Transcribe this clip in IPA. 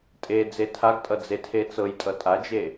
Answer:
tʼ e d͡z e tʰ a ɡ tʼ ʌ d͡z e tʰ e t͡s ɤ j tʼ ʌ tʼ a d͡ʒ e

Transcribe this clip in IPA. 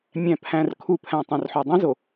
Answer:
mʲ æ̃˨ pʰ æ̃˨ r kʰ u˨ pʰ æ̃˨ tˤ õ˨ r ħ o˨ dˤ ĩ˦ z o˨

